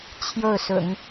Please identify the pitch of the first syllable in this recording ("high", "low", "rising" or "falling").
falling